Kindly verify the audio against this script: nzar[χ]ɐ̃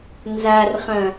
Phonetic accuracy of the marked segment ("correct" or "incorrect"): correct